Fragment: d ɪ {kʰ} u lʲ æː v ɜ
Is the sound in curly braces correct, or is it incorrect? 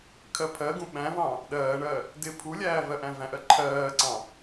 incorrect